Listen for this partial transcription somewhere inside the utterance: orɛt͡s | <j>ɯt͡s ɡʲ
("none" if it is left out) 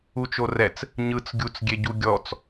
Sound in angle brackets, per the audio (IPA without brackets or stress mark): ɲ